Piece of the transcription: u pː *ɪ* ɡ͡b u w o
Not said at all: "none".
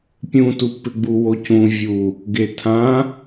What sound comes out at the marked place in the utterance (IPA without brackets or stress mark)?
ɪ